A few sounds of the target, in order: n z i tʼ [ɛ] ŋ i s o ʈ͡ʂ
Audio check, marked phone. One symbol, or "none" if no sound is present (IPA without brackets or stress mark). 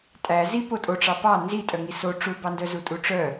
œ